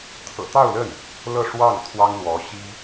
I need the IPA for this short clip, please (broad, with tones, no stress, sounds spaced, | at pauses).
t̪ʰ ɤ̰˨˩ t̪ ɑ˥˧ ʊ̯ l ə˥˩ n | l ɤ˥˧ ʂ w ɑ˥˩ ŋ t̪ʰ w ɑ˥ ŋ l w ɔ˧˥ ɕ i˥